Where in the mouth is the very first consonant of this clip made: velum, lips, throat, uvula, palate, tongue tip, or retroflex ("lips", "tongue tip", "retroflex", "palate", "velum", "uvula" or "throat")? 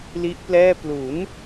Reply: tongue tip